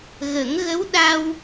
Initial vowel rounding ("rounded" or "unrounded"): unrounded